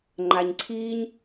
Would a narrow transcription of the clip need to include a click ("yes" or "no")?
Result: yes